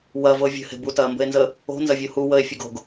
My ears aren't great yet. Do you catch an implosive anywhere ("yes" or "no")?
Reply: no